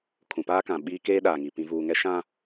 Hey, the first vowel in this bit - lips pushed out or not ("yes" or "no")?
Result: yes